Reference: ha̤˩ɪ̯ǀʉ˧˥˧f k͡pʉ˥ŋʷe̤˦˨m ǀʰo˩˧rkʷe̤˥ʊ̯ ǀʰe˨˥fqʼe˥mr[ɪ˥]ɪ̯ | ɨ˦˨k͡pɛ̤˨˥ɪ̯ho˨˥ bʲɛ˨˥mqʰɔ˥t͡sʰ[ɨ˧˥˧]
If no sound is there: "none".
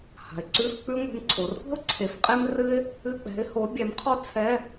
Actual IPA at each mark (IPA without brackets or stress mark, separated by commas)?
ɨ˥, ɛ˧˥˧